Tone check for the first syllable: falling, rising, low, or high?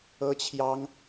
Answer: high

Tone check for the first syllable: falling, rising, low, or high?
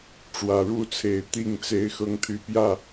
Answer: low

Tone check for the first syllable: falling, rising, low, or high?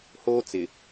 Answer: high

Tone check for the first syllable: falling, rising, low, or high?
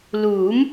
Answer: rising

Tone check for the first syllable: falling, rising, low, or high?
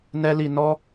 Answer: high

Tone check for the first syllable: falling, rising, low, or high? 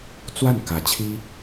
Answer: falling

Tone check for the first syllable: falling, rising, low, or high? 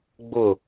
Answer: falling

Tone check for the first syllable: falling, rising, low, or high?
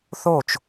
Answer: falling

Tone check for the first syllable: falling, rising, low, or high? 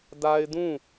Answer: high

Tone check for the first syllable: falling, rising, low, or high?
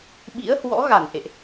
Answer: rising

